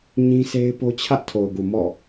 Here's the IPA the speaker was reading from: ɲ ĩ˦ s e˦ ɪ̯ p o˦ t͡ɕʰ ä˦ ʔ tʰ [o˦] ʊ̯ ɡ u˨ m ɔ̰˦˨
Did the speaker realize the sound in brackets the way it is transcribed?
no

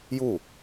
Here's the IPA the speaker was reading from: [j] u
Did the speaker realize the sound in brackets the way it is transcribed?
yes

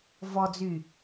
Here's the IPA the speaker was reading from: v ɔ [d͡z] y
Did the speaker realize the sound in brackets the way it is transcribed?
yes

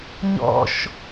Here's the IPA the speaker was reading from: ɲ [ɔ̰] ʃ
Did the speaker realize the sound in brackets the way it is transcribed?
yes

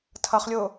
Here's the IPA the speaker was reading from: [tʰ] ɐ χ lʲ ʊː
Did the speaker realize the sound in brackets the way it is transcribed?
yes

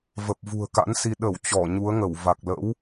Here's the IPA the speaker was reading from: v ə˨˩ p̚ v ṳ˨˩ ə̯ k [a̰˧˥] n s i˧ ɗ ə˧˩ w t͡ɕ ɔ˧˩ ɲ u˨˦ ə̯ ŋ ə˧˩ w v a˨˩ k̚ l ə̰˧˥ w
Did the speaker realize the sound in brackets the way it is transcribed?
yes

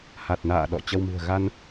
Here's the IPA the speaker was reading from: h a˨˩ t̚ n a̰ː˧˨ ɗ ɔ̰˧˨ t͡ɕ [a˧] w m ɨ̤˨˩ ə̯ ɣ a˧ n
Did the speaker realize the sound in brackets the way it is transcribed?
no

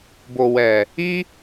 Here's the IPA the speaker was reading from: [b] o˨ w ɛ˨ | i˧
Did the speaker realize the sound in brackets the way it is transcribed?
yes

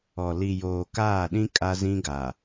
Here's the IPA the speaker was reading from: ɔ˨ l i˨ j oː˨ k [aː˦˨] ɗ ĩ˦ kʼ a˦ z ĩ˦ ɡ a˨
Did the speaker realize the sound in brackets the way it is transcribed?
yes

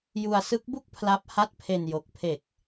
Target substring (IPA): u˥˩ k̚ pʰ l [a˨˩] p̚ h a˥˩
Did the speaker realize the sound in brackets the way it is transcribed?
no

